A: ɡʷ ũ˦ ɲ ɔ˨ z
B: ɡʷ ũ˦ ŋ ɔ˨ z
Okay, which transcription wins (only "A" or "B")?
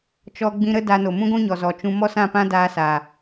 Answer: A